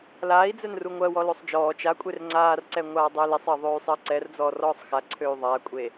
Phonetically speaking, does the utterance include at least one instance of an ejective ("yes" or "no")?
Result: yes